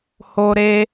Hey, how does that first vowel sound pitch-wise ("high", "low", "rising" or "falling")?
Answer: high